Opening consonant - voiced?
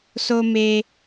no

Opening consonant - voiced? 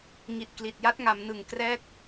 yes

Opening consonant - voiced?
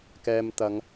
no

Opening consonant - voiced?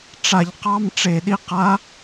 no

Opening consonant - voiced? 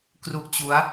no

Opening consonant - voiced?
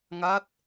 yes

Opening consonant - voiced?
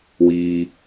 yes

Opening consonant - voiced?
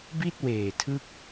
yes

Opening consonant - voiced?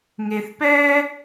yes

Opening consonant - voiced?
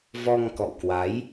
yes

